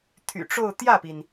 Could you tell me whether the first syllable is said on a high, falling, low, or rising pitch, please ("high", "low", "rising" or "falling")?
low